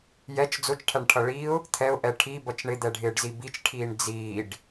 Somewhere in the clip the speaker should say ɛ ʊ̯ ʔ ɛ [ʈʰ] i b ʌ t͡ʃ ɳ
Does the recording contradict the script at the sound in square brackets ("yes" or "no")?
no